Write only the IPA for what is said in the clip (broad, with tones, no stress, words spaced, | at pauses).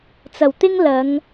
t͡sɐ˨˩wt̪ɪ˥ŋ lɐ˨˧ŋ